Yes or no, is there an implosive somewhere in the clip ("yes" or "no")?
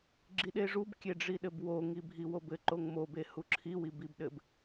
yes